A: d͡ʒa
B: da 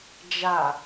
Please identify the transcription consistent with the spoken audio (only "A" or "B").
A